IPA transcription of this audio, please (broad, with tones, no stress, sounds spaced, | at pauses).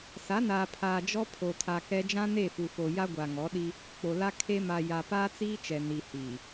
s a˨˦ n aː˨ pʰ aː˨ d͡ʒ ɔ˦ pʰ o˨ tʰ a˨ k ɛ˦ d͡ʒ ã˦ n e˦˨ f u˨ f o˨ j a˦ ɡʷ a˨ ŋ ɔ˨˦ ɗ i˦ | k͡p o˨ l a˦ kʰ e˦ m a˨ j a˨ p aː˦ t͡s iː˦ t͡ʃ ɛ˨ n i˨ h iː˨